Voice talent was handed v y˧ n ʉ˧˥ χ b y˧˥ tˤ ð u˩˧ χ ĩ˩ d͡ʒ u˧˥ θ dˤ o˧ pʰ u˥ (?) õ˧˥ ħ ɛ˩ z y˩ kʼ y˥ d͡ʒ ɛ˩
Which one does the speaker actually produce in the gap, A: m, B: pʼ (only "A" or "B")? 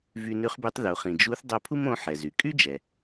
A